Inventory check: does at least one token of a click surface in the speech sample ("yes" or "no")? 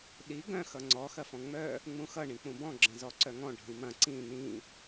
yes